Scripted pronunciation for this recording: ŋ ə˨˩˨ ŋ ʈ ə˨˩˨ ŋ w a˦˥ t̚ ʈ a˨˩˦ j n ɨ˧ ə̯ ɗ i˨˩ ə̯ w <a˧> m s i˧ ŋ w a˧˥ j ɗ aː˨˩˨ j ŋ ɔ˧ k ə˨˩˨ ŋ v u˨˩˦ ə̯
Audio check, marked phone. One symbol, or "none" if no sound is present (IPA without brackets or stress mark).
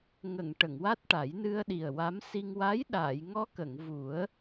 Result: a˧˥